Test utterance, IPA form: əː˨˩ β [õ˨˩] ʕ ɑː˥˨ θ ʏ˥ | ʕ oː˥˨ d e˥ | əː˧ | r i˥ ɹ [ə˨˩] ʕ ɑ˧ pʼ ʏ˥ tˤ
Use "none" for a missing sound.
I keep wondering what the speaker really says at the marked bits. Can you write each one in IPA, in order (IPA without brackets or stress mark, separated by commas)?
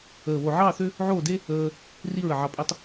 o˨˩, ə˨˩